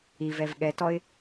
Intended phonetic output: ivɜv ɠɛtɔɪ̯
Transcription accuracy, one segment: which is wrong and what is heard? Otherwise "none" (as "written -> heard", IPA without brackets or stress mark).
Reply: ɜ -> ɛ